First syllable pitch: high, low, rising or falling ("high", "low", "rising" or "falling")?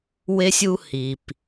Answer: high